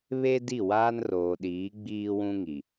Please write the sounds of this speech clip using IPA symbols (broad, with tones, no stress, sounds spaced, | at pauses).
β e˦ d i˦˨ w aː˦ n r oː˨ ɗ iː˨˦ ɡ͡b iː˦ w ũ˦ ŋ i˨